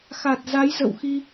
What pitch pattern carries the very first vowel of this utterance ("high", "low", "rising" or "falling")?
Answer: low